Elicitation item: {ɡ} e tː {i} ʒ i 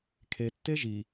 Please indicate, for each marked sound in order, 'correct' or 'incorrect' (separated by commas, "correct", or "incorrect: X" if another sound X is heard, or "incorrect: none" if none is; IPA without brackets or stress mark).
incorrect: kʰ, incorrect: e